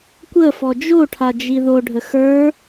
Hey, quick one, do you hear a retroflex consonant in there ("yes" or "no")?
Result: yes